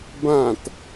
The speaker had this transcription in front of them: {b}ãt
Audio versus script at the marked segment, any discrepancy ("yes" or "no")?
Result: no